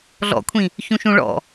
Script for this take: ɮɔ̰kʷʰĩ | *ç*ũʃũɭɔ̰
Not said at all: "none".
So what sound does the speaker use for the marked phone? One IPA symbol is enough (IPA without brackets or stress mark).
ç